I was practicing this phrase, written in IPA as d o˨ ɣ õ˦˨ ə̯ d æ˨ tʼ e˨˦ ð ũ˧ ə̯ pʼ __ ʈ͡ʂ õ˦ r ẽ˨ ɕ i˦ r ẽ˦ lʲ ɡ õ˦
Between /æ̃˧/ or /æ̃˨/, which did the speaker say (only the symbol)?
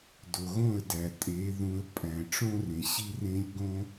æ̃˨